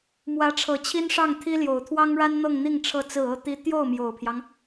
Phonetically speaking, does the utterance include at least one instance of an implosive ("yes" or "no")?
no